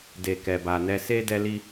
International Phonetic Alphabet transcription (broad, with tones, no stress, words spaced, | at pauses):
de˨kɛ˨ba˨nɛ˧ se˦ dɛ˦li˦